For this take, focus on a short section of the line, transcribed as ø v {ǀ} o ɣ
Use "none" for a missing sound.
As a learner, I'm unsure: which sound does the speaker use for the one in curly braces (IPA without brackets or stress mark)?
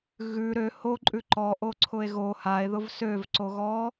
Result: ǀ